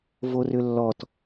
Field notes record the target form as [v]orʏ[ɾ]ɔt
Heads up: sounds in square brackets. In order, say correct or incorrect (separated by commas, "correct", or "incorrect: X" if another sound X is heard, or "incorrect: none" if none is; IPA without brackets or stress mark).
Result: correct, incorrect: lː